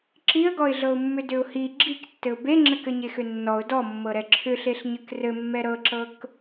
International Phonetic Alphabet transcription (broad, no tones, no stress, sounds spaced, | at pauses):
ǁ i ə̯ ɡ ɔ ɪ̯ ɮ ɤ ʊ̯ mː ʏ d ʏ ʊ̯ h i ɡ͡ǁ i k tː ɘ ʊ̯ b e ŋ͡ǁ ɘ k ɘ ɲ e x ʏ nː ɔ ʊ̯ d ɔ mː ɤ ɾ ɛ ǁʰ ʏ ɬ e ɬ ɲ ɘ k r ɘ mː ɛ ɾ ɤ ǁ ɤ k